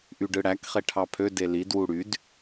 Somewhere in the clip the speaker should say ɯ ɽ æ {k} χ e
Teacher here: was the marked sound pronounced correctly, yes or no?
yes